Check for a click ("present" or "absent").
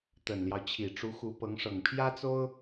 absent